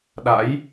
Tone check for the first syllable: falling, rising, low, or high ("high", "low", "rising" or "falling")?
rising